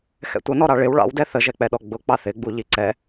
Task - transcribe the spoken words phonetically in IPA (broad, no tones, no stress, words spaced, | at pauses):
xɛ̰tʷʌnɔɾɑ ɭɪw ɭɑ̰wdɛ θəʒɛk͡pɛɗɔ ɡ͡bʊ k͡pɑθɪɡ͡bu ʎiǀɛ